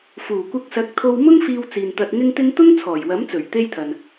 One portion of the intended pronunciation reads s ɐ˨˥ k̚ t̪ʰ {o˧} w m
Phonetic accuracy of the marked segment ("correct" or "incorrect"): correct